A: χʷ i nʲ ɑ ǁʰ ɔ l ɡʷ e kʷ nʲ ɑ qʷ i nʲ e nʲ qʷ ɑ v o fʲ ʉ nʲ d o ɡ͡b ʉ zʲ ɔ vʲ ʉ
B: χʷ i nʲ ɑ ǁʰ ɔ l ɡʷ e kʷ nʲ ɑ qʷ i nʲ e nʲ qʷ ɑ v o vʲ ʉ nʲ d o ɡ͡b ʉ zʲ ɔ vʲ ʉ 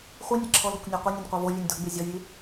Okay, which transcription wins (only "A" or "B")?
B